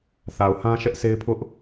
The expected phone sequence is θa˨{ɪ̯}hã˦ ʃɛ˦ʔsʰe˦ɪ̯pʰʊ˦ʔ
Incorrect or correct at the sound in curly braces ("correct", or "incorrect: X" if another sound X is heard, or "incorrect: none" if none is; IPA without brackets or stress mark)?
incorrect: ʊ̯